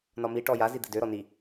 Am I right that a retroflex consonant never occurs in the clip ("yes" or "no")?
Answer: no